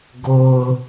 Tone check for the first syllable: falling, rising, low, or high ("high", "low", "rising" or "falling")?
low